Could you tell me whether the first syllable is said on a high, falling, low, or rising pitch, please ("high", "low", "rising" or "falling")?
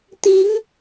rising